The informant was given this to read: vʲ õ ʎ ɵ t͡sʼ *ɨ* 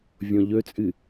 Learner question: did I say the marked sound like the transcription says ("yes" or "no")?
yes